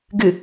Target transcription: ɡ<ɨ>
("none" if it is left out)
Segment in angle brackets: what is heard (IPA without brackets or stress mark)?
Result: ɨ